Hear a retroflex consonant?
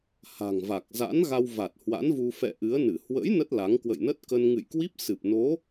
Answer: no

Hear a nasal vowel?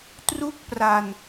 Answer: no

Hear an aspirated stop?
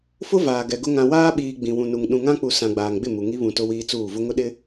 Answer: no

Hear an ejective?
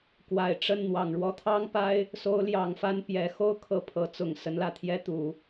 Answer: no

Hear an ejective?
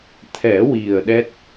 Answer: no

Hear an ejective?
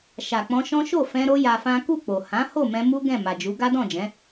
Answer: no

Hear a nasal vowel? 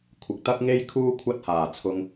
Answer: no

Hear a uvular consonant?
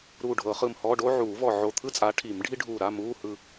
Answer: yes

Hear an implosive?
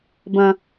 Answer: no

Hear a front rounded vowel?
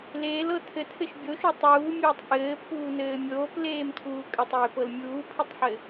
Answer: no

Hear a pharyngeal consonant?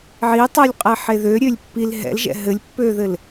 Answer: yes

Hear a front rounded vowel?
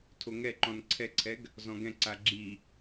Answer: no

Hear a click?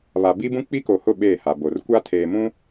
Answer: no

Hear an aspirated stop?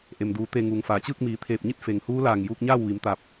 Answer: yes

